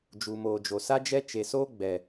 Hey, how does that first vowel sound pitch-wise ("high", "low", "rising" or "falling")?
low